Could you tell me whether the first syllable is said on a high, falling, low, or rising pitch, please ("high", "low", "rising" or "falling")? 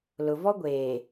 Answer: low